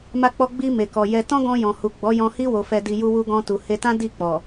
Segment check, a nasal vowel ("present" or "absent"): present